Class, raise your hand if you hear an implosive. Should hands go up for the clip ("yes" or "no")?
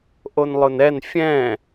no